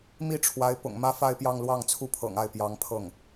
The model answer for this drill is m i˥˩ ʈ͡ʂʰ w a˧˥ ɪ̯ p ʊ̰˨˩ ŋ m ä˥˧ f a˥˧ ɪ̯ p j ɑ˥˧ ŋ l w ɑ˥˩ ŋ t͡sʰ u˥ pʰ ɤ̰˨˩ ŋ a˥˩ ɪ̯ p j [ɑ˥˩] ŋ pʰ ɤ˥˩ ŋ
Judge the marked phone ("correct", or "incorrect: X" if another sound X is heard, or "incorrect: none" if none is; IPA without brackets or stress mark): incorrect: ɑ˧˥